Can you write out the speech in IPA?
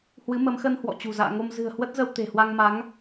hwɨ˨˦mə˨˦mxə˧n hwɔ̰˧˨t͡ɕṳ˨˩za̰ː˧˨ŋo˧m zɨ̤˨˩ə̯hwə˦˥t̚zə˧w t̪e̤˨˩hwa˧ŋma˨˦ŋ

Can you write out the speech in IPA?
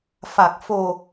fa˨˩k̚fo˨˩

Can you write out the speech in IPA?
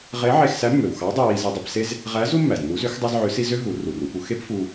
ʁe˧˥ʕe˧xsæ˧˥ mːø˩wxɑ˧˥dˤæ˧w i˩˧zi˧dˤi˧pse˥z | ʁæ˧˥zu˥ mːæ˩znːu˧˥zø˧˥x dˤɑ˥zʕø˧˥si˥ zø˥ ɦu˩˧ru˩ru˩˧pu˩˧ xe˥pfu˧

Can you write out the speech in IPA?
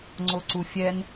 ŋ͡ǀoǀufʲɛn

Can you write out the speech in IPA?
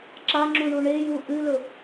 ǁaŋ͡ǁuɳu ɳeju ʔɨlɵ

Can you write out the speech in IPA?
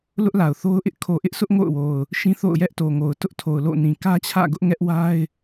lʊ˦ʔla˨ʊ̯θo˦ʊ̯ʔɪ˦ʔ kʰo˨ʔɪ˦ʔsʰʊ˦ʔ ŋo̰˦˨ʊ̯wo˨ʊ̯ | ʃĩ˦θo̰˦˨ʊ̯ jɛ˦ʔto˨ŋo˨ʊ̯ tʊ˦ʔtʰo˨ʊ̯ lo̰˦˨ nĩ˨kä˦ t͡ɕʰä̰˦˨ɡʊ˦ʔ ŋɛ˦ʔwa˦ɪ̯

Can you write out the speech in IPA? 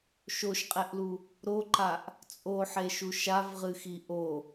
ʃoʃqʼɛʔlu | ɾoǃaʔ | t͡sʼoħeʃu ʃavʁɨxi ʔo

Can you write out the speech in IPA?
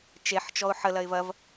t͡ʃeħt͡ʃɔʊ̯ ħəlɐɪ̯ vɐv

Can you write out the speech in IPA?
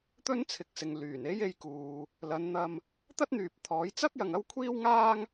t̪ɵ˥nt͡sʰɪ˨k̚sɪ˨ŋ lyː˨˩ne˥je˧jkuː˨ | lɐ˨˧nn̪ɐ˧m | t̪ɐ˥t̚n̪yː˨p̚t̪ʰɔː˨˥j t͡sɐ˥k̚jɐ˨ŋ ɐ˥wkʷʰiː˥wŋaː˥ŋ

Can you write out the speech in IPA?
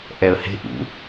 ʔɛə̯he̤ ʔṵ

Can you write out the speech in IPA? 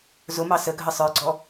zʊmɑ səɡʱə sˤə˞ɡ͡ǀɔ

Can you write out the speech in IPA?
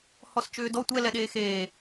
hɔst͡ʃʏːdɔ tʷɛlɛɗeː xeː

